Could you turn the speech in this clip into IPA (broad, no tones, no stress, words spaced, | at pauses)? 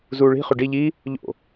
zuːɭi̤ χʉɖi ʎi | ʎo̰